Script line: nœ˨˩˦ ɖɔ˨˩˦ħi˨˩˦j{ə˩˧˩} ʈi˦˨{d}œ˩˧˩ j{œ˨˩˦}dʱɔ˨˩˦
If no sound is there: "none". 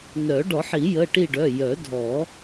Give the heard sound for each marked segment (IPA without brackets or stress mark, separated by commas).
ə˩˧˩, ɖ, œ˨˩˦